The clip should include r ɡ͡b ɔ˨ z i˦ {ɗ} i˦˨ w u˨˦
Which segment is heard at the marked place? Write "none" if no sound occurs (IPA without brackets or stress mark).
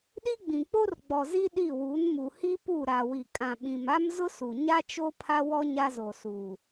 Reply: ɗ